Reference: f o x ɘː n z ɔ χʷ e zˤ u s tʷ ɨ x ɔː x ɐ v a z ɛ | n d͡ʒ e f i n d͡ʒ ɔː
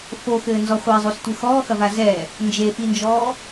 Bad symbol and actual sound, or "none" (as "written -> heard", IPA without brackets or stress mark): none